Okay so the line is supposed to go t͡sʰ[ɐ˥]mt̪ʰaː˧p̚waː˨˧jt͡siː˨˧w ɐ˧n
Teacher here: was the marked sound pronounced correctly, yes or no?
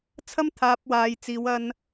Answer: yes